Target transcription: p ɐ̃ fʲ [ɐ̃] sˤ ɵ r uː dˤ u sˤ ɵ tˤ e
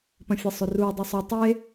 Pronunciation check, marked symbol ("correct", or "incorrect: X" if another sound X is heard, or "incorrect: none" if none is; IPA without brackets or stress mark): incorrect: ɐ